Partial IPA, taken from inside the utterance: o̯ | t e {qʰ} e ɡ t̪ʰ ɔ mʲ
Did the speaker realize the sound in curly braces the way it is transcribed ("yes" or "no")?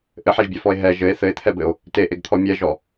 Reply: no